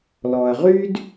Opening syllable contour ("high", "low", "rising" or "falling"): low